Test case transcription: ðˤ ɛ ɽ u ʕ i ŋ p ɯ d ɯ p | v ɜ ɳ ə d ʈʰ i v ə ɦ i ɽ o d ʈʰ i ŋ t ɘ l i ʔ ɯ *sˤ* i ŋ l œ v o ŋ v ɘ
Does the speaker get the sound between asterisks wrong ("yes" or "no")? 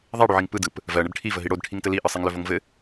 no